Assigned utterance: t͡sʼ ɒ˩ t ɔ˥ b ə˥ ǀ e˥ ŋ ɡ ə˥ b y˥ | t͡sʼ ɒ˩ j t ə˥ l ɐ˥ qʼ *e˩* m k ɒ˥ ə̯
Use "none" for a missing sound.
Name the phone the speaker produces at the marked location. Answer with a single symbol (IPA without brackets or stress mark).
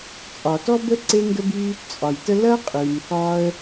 y˩